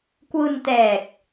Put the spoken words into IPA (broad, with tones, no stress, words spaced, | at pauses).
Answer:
kwu˧ntɛː˨˩k̚